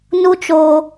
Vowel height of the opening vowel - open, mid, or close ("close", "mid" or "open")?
close